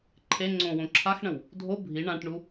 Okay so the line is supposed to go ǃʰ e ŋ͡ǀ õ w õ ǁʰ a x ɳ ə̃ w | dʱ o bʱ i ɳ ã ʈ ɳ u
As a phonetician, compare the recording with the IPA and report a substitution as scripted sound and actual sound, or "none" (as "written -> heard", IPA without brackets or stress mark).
none